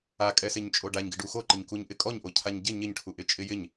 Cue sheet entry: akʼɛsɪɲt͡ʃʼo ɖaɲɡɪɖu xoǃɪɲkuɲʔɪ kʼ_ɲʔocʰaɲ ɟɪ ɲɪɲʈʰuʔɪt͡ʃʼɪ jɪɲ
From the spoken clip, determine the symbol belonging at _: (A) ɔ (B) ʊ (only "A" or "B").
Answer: A